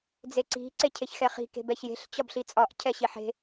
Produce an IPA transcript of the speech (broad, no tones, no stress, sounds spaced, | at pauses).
d͡z e ǀ i̤ ǀ e cʰ e ç x ɛ χ i̤ k e̤ b ɛ ç j e̤ ɬ t͡ɕ ɒ b ɬ i t͡sʼ ɒ ʔ cʰ ɛ ɕ i ħ e̤